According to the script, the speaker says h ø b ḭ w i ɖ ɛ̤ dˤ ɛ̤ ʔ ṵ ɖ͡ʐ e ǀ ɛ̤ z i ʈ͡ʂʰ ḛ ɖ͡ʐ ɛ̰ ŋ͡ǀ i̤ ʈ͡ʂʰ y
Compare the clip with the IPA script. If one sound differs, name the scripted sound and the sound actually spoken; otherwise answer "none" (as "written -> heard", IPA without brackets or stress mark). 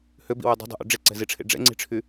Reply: ɖ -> dˤ